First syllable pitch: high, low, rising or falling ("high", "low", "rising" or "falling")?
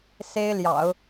high